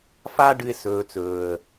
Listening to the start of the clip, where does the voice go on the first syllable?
high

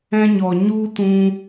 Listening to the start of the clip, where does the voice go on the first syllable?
high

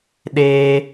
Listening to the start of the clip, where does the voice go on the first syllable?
high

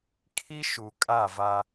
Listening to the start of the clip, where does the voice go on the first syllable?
high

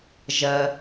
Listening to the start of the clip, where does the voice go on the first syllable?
low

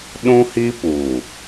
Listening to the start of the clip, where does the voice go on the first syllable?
high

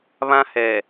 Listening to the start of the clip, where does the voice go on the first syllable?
high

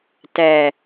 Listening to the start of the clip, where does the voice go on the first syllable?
low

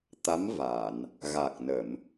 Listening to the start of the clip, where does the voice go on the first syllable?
rising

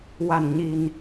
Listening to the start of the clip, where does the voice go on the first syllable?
low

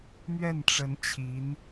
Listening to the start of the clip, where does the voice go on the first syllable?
falling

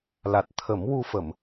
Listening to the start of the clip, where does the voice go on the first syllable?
low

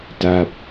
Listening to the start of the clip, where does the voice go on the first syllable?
falling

